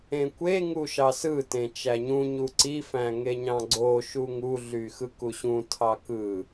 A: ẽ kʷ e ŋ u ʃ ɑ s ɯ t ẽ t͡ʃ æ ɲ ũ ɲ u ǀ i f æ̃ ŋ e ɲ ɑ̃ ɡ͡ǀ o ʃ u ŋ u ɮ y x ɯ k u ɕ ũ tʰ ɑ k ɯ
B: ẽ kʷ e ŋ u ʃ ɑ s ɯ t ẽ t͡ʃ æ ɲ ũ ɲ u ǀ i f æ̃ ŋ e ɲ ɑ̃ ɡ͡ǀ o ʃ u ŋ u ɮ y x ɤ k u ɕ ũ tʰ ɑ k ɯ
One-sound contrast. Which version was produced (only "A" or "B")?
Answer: A